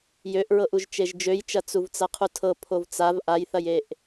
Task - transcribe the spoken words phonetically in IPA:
j ø ʔ ɹ ɤ ʔ u ʒ t͡ʃ e ʒ d͡ʒ ø j t͡ʃ ɐ t͡s u v t͡s ɐ qʰ u tʰ ɤ pʰ o v t͡s a v ʔ a j θ ɐ j e ʔ

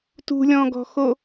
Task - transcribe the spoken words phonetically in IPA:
t ṳ lʲ ɔ̃ ɡ ɔ̤ x o

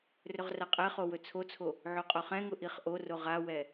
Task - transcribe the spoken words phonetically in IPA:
r ɵ ʁ r a qʼ ɛ χ o w ɵ t͡sʰ o t͡sʰ o | ʕ o qʼ o χ ɛ̃ ŋ ʊ ʔ i χ ʔ o r o ʁ a w ɛ

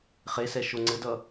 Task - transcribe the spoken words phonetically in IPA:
χ e s ɛ ʃ o ŋ͡ǀ ɘ d ʌ

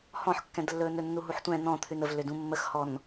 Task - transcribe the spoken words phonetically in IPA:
h ɔ̃ ħ kː ɛ̃ d lː ɵː n ɵ nː u ɦ u ħ tʷ ɛ̃ n ɔ̃ t̪ʰ ʉ n ə v lː ʏ d ũ mː ə x h ɔ n

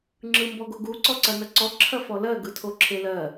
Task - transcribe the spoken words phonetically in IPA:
ŋ͡ǁ ɯ m b ɔ ɡ o ɡ u ǀ ɔ ǀ ɐ n ɐ ǀ ɔ ǁʰ ɐ f ɔ l ɜ ɡ ɯ tʰ o ǁʰ e l ɜ

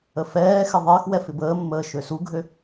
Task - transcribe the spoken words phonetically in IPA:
ə f ɛː x ɪ ðˤ ɪː x w ɛ f ɪ b əː mː əː ʃ ø s u ɡʱ ø

